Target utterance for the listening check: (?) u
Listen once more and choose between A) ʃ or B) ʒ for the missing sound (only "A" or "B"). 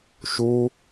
A